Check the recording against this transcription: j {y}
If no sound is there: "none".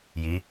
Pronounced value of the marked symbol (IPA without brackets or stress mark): i